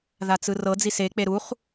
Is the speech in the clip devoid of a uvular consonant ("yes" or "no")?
no